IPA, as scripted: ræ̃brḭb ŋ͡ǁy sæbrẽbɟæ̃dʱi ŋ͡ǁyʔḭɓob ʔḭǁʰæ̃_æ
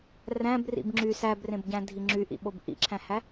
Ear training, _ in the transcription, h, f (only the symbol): h